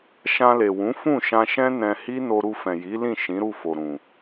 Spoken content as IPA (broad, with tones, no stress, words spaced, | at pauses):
ʃã˧le˨ wũ˨˦ fũ˦˨ʃã˧ʃɛ̃˦ nɛ̃˧hi˦no˧ ɾu˧fɛ̃˨ji˨˦lĩ˦˨ ʃĩ˨˦ɾu˦˨fo˨ ɾũ˨